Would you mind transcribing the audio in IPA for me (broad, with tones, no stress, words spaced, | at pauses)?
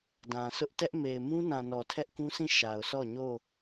dã˨ sʊ˦ʔ tɛ˦ʔme˨ɪ̯ mũ˦nã˨ nɔ˨tʰɛ˦ʔkũ˦sʰĩ˦˨ ʃa˨ʊ̯sɔ˦˨ ɲo˦˨